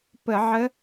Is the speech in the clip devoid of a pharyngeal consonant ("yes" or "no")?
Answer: no